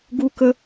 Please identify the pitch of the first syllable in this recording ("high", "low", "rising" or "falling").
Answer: high